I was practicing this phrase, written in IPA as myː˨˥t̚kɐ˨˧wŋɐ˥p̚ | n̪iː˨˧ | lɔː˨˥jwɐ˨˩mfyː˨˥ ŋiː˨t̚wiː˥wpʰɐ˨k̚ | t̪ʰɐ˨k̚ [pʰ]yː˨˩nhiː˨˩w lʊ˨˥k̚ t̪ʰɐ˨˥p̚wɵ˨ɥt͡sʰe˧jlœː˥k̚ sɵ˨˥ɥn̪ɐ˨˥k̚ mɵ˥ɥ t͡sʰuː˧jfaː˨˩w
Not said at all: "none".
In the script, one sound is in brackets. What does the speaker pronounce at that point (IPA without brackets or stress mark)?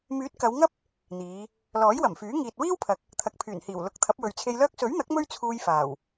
pʰ